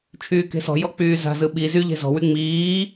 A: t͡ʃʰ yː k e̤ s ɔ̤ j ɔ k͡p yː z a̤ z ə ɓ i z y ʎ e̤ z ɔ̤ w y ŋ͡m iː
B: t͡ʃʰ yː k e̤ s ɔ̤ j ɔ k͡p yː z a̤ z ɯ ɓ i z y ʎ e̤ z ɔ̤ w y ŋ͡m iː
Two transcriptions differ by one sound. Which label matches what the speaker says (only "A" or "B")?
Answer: B